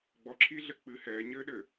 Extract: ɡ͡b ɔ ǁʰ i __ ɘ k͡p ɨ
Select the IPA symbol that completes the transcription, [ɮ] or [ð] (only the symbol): ɮ